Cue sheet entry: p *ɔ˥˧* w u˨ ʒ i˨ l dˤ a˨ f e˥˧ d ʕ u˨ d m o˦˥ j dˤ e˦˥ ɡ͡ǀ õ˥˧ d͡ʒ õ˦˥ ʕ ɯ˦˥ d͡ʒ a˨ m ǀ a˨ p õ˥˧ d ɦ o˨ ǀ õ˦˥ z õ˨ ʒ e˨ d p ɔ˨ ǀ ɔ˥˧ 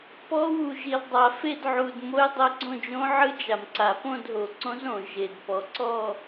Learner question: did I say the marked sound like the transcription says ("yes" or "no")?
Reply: no